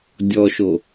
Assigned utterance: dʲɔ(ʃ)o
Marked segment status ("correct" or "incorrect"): correct